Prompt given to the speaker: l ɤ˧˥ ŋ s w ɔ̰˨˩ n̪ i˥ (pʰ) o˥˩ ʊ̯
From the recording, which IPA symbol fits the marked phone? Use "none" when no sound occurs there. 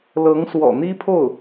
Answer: pʰ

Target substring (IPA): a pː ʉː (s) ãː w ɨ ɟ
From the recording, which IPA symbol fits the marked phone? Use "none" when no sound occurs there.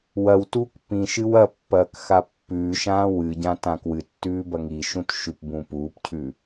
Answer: ʃ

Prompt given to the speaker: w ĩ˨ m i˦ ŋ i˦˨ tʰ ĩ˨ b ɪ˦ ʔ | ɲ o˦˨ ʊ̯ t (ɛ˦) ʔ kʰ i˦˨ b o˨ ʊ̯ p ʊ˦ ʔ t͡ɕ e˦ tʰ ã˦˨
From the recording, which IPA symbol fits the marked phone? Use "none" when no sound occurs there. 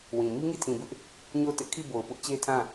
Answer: ɪ˦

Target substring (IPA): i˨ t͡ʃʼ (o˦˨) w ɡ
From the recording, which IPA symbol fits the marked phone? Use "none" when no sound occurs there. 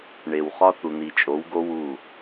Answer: o˨˦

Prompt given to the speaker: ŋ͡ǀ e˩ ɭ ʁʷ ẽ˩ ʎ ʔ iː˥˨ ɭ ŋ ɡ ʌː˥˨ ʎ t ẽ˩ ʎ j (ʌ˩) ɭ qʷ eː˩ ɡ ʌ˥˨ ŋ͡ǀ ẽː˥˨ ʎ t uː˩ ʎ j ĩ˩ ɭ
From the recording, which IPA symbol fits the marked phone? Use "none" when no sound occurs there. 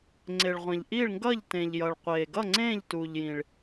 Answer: ʌ˩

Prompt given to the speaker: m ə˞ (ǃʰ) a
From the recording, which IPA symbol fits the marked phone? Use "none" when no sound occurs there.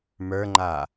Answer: ŋ͡ǃ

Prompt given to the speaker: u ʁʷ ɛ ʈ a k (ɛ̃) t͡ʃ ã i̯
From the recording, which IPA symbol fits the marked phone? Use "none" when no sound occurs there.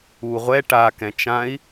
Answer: ɛ̃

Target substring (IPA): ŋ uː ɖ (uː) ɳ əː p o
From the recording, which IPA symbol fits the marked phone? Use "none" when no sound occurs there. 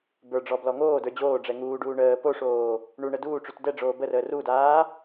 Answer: uː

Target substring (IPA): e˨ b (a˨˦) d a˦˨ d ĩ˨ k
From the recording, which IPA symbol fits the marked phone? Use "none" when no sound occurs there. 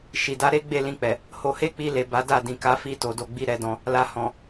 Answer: a˨˦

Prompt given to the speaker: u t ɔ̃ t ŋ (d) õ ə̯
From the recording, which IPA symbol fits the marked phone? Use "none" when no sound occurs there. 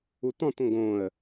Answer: ɡ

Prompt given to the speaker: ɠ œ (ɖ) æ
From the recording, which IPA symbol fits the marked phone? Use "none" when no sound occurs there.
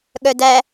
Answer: d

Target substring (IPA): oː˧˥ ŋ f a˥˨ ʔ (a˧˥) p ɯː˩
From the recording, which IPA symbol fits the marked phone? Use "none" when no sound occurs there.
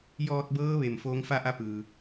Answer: a˧˥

